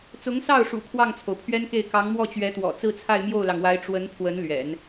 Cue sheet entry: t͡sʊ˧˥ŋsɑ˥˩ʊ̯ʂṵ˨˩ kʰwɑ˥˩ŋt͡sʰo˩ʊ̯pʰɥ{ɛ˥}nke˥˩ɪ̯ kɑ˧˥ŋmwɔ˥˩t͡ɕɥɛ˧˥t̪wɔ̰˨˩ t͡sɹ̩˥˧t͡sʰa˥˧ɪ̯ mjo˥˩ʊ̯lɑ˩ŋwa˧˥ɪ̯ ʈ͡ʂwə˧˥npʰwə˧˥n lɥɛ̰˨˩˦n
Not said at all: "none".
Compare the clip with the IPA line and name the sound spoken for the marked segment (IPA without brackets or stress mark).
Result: ɛ˥